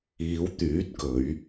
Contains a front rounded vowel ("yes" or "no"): yes